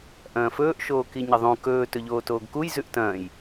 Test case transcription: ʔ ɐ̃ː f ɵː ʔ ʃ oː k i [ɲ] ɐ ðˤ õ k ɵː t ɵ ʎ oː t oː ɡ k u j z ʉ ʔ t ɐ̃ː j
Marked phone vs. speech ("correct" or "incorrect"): correct